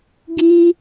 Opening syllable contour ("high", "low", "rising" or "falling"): high